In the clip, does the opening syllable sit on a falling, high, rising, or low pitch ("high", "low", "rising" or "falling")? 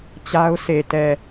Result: high